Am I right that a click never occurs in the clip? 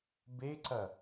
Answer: no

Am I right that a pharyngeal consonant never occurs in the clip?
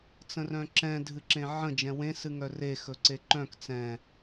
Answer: no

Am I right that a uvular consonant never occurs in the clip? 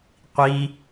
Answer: no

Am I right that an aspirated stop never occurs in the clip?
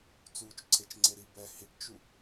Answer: no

